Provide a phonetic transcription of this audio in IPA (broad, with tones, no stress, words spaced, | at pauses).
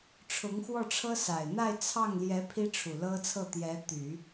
ʈ͡ʂʰʊ˧˥ŋxwɔ˥˩ʈ͡ʂʰɤ˥ sa˨˩ɪ̯n̪a˥˧ɪ̯t͡sʰɑ˥˩ŋljɛ˧˥ pʰi˥ʈ͡ʂʰu˨˩lɤ˥t͡sʰɤ˥˩ t̪jɛ˧˥t̪y˨˩˦